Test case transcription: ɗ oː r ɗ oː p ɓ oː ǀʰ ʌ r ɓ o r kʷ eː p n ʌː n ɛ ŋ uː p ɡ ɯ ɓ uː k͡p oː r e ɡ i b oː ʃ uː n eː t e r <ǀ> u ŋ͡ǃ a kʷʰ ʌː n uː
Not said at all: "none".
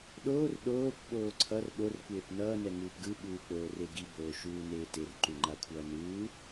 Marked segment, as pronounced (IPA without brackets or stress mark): ǃ